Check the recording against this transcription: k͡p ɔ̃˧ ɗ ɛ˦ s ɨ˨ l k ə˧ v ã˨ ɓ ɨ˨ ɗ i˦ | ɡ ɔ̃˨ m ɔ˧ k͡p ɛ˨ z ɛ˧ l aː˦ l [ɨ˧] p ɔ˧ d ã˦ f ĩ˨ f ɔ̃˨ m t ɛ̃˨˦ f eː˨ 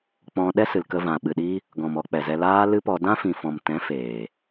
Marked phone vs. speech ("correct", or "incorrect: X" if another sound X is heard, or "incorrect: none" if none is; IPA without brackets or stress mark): incorrect: ɨ˦